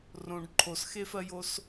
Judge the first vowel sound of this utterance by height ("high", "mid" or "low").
mid